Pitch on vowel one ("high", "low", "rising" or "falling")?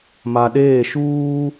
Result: low